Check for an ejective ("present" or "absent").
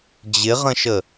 absent